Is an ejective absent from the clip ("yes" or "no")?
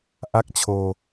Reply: yes